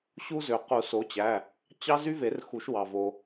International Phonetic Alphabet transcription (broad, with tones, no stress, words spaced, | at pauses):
ɕu˦zø˩ qu˨˩˦ so˨˦t͡ɕæ˩˧˩ | t͡ɕɑ˦zy˦ ve˨˩˦rxu˨˩˦ʃ wɑ˩vo˩